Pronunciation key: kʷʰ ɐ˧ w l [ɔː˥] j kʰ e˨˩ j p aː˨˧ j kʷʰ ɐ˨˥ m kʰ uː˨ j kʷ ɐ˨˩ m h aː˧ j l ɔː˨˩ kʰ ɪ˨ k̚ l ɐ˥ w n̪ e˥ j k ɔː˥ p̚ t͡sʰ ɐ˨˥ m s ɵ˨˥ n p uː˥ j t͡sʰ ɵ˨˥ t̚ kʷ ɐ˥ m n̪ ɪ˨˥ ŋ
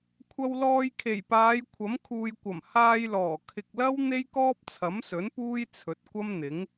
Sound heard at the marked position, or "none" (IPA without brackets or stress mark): ɔː˧